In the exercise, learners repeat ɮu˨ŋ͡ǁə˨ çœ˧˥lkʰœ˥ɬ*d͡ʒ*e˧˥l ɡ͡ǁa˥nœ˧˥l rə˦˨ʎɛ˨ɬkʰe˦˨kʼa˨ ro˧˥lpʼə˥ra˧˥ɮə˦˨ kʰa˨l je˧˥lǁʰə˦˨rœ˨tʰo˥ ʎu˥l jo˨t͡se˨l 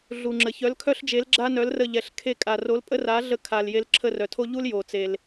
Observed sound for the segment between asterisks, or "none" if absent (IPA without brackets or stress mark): d͡ʒ